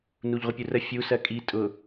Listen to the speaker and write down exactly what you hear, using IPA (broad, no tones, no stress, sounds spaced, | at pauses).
n u ʎ ʁʷ ə pʲ u r ə fʲ u s ɜ kʼ i tʼ ʊ